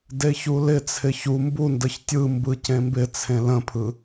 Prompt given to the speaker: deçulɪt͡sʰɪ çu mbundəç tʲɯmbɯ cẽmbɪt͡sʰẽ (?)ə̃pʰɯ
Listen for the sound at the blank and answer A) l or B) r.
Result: A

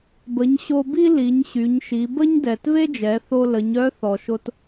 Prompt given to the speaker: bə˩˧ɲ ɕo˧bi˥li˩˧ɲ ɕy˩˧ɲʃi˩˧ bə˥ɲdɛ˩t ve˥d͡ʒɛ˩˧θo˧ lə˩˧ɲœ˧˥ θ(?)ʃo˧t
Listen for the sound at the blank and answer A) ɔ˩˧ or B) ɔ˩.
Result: B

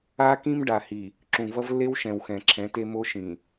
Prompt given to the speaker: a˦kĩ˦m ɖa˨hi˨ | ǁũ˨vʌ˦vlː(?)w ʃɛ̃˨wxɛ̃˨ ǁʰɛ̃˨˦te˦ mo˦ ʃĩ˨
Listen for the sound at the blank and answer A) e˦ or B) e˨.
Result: A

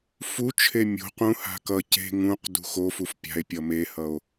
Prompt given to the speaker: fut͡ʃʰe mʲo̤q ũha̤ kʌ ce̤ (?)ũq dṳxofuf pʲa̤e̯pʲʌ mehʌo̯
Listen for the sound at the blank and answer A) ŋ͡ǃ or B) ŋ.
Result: B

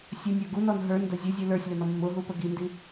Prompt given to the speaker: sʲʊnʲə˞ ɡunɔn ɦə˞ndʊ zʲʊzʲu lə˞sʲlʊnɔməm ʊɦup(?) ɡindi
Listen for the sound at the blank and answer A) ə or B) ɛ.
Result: A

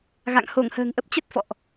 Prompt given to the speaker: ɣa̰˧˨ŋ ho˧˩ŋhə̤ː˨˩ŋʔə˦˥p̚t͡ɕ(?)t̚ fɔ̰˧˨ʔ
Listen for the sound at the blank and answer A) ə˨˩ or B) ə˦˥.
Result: B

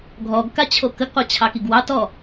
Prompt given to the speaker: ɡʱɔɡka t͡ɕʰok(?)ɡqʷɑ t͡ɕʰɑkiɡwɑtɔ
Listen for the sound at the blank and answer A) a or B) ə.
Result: B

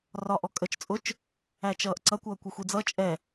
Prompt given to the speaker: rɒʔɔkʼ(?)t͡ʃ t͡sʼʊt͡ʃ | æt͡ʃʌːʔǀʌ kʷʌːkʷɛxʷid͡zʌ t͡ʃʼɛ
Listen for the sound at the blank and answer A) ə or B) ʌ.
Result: A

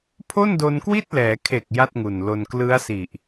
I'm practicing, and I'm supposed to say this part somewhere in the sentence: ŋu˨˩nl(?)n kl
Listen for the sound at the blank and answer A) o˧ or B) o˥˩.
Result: A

